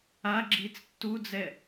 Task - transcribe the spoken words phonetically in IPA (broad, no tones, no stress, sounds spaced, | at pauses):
a ɡ͡ǁ iː t͡s tː u d͡z ɛ